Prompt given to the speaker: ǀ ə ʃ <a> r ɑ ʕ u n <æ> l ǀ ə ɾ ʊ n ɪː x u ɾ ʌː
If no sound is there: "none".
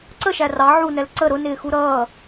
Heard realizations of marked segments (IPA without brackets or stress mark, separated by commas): æ, ɛ